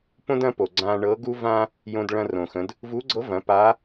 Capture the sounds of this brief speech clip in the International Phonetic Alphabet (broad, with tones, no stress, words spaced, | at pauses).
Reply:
põ˥dɐ̃˧˥ po˩ɡ͡ǀã˧ ɳɤ˧˥ ɡu˥vã˥ | jõ˧dɭɐ̃˧rõ˩xə̃˩˧d | vu˧˥ɡ͡ǀɤ˧˥vɐ̃˩˧ pa˧˥